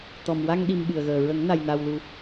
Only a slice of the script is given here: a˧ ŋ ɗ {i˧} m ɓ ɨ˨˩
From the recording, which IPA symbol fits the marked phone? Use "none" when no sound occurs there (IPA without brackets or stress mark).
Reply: i˧